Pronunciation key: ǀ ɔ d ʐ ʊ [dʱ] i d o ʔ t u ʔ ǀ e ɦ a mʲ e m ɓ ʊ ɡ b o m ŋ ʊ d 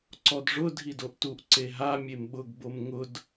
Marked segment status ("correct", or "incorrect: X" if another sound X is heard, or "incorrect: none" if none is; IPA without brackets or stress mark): correct